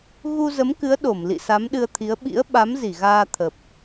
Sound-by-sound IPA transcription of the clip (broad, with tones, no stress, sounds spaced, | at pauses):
ɣ u˧ z ə˨˦ m k ɨ˨˦ ə̯ ɗ o˧˩ m l ḭ˧˨ s a˨˦ m ɗ ɨ˧ ə̯ t̪ʰ i˨˦ ə̯ ɓ ḭ˧˥ ə̯ ɓ a˨˦ m z i˧˩ ɣ aː˧ t̪ʰ ə˨˩ p̚